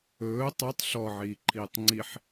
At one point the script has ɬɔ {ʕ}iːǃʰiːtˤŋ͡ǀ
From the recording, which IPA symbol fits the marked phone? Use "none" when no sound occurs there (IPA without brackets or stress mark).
ʕ